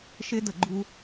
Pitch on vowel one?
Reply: high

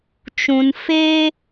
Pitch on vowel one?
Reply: low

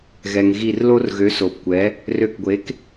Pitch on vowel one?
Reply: low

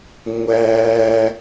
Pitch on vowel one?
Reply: low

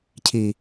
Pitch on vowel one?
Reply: low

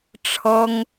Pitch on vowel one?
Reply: high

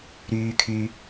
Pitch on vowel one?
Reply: high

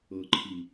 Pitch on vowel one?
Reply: low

